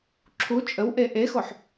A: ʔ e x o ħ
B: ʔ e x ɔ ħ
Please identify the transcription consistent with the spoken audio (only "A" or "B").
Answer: A